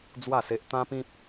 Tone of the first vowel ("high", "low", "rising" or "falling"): falling